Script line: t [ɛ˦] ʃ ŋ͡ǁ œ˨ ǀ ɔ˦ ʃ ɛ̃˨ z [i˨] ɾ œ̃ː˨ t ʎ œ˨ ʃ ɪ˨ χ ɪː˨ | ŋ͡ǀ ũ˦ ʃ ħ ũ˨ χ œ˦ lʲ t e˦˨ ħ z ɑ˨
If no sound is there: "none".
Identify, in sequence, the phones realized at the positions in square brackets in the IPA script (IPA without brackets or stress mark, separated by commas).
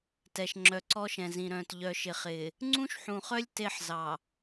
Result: ɛ˨, ĩ˨